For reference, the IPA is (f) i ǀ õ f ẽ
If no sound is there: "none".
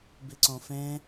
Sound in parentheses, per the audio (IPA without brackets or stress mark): b